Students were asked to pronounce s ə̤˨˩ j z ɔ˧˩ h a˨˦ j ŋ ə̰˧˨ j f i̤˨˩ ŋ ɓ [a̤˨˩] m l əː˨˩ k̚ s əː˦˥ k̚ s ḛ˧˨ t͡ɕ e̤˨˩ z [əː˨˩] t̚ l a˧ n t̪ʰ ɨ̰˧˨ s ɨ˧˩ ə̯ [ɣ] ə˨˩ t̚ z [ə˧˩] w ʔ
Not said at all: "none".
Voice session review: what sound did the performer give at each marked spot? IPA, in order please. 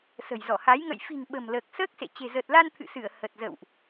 ə̤˨˩, əː˨˩, h, ə̰˧˨

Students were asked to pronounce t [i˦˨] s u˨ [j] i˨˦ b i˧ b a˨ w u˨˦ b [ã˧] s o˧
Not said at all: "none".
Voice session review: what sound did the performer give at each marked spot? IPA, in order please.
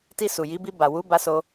i˧, j, a˧

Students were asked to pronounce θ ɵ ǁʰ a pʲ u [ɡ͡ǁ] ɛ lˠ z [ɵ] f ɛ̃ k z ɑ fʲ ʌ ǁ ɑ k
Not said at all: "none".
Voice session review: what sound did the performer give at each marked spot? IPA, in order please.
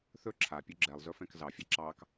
ɡ͡ǁ, ɵ

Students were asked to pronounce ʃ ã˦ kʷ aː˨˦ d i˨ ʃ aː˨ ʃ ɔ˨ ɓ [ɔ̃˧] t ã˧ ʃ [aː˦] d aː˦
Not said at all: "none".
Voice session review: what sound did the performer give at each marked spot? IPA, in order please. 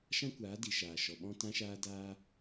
ɔ̃˧, aː˧

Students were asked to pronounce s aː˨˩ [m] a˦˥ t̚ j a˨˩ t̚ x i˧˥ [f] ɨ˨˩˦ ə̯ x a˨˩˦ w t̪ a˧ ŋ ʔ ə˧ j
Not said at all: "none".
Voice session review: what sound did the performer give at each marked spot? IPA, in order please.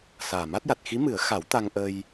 m, m

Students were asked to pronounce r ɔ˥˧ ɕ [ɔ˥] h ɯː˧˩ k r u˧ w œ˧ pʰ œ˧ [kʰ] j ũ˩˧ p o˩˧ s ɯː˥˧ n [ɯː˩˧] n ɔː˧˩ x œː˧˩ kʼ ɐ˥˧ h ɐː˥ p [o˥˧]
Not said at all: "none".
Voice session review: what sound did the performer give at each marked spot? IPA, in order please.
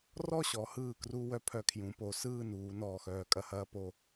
ɔ˩˧, kʰ, uː˩˧, o˥˧

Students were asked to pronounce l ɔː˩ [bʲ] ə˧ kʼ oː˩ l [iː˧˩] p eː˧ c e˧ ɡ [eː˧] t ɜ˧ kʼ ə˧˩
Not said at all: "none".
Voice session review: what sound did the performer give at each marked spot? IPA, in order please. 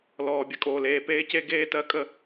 bʲ, eː˧˩, eː˧

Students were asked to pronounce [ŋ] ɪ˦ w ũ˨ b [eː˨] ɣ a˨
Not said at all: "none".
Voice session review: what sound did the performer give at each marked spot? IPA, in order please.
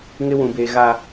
ŋ, eː˨

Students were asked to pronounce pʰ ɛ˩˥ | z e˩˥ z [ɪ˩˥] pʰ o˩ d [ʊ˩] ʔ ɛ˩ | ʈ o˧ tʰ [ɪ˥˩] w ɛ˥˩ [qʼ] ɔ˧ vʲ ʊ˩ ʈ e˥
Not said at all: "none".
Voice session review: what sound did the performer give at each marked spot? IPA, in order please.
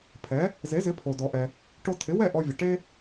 ɪ˩˥, ɔ˩, ɪ˩˥, ʔ

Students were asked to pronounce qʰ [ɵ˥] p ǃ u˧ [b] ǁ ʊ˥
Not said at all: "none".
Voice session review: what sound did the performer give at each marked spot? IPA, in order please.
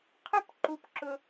ʊ˥, p

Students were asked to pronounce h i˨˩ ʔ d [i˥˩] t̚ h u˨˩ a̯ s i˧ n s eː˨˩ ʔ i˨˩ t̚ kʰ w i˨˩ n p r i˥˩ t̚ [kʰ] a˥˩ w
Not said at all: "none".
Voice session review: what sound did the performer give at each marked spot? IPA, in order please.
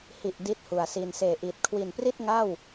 i˥˩, ŋ

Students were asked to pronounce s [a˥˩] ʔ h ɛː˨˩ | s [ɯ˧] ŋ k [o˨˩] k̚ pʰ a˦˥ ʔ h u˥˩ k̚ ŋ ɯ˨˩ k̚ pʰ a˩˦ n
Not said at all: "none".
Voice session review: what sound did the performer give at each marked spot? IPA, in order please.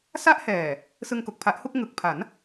a˥˩, ɯ˧, o˨˩

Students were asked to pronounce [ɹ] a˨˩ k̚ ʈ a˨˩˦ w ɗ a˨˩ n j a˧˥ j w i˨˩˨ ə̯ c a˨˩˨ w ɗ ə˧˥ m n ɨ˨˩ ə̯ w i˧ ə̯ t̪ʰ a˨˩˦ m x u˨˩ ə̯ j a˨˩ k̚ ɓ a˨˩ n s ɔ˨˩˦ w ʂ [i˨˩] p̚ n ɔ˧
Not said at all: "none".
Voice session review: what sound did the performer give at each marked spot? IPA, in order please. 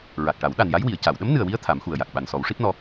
ɹ, i˦˥

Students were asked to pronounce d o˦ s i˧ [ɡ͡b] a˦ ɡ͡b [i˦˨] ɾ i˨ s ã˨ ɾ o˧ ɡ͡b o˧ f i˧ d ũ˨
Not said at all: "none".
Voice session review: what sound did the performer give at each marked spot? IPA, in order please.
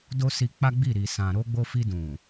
k͡p, i˦˨

